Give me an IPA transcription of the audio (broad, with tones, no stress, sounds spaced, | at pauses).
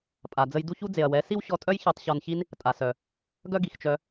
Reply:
pʼ a˨ d͡z ə˧ j d u˦ ç u˦ d͡z e˨ ɐ̯ w ɛ˨˦ s i˦ w ɕ ɔ˧ tʼ œ˦ j ç ɛ˧ tˤ ɕ ɔ˧ n ç i˦ n | tʼ a˨ s œ˨ | ɡ œ˦ ɡ i˨ x t͡ʃ œ˧